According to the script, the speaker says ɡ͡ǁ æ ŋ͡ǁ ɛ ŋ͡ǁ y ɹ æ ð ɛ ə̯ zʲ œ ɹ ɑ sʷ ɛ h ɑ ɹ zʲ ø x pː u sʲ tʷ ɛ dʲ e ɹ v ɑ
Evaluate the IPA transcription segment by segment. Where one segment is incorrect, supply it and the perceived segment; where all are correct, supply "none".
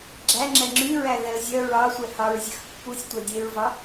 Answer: none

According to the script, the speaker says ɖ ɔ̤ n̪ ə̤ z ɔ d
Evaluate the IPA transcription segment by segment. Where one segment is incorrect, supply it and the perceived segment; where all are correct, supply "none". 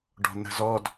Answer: none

